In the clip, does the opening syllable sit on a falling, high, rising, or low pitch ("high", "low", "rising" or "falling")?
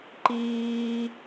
high